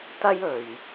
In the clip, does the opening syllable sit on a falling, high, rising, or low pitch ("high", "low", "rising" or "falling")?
high